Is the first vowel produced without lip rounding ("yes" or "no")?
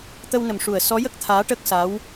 yes